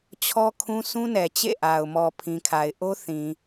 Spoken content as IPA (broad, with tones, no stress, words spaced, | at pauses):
t͡ɕʰɔ˦kʰũ˦ sũ˦nɛ˨t͡ɕḛ˦˨ʔa˨ʊ̯ mɔ˨pʰĩ˨kʰa˨ɪ̯ ʔo˦θĩ˨